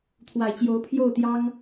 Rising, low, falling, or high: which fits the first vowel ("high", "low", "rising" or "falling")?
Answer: low